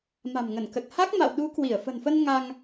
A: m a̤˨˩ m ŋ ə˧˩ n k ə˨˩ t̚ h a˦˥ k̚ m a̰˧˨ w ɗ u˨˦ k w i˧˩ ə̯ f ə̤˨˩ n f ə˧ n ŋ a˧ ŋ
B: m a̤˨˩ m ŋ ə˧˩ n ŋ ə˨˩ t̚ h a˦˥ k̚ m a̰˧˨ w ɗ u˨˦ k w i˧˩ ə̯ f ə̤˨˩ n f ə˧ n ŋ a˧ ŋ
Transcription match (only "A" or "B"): A